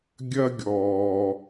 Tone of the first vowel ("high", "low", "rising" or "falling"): high